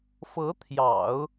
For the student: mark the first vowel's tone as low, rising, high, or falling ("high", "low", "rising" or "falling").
rising